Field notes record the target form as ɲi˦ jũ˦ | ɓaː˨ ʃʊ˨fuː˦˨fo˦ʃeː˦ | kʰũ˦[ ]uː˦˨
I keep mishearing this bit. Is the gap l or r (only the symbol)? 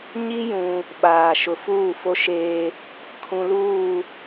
l